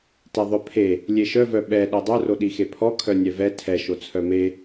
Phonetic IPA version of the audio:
t ɛ ðˤ œ pʰ e | lʲ e ʃ œ v œ ɓ ɛ ɗ ɛ dˤ œ r o ɗ i x e pʰ ɔ kʰ œ nʲ ɛ v ɛ tʰ ɛ ʃ o t͡sʰ œ m e

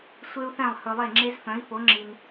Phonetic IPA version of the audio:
sʷ e˥ u̯ θ ɛ̃˥˩ lˠ h ɵ˧ lˠ e˥˩ ŋ͡ǁ e˥ z f œ̃˩˥ i̯ f o˩˥ ŋ͡ǁ i˩ n

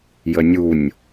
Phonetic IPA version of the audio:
j ə nʲ u nʲ

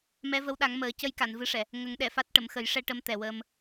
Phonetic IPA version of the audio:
m ɛ˧˥ v ə˧˥ w ɗ a˨˩˦ ŋ m əː˨˩˦ c ə˧ j k a˨˩˨ n v ɨ˧˥ ʂ ɛ˨˩˨ | ŋ ə˨˩˦ ŋ ɗ ɛ˨˩˨ f a˦˥ t̚ ʈ ə˨˩˨ m x ə˨˩˦ j ʂ ɛ˧ ʈ ə˧ m t̪ ɛ˨˩ w əː˧ m

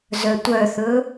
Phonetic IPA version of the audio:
z œ tʷ œ θ ɵ

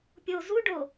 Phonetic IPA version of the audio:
pʲ o z u ɖ o

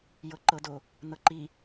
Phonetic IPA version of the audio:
j ɤ ǃ ɤ d o | n ɤ ǃ i

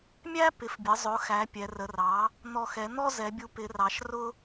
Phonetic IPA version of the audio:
mʲ æ˦ p ɪ˩˧ f bʲ ə˩˧ zˤ ʊ˩˧ x æ˩˧ pʲ ɛ˩˧ r ə˩˧ r ɑ˩˥ | n̪ ɔ˨˩ x ɛ˩˧ n̪ ɔ˦ z ɛ˩˧ bʲ u˩˥ p ɪ˩˧ r ɑ˩˧ ʃ r ʊ˦

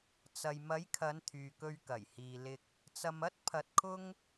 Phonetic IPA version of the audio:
t͡s ɐ˨ j m ɐ˨˥ j kʰ ɐ˨˧ n t̪ʰ yː˨ k ɵ˧ ɥ k ɐ˨˩ j h iː˨ l ɪ˨ k̚ | t͡s ɐ˧ m ɐ˥ t̚ pʰ ɐ˧ t̚ kʰ ʊ˥ ŋ

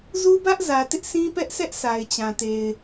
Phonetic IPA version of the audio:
z u˦ b ä˦ ʔ z ä˨ t ɪ˦ ʔ sʰ ĩ˦ p ɛ˦ ʔ sʰ ɛ˦ ʔ s a˨ ɪ̯ t͡ɕ ã˨ t e˨ ɪ̯

